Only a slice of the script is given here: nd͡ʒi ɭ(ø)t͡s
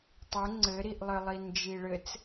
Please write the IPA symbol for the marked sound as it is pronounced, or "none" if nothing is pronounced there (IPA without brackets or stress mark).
ɘ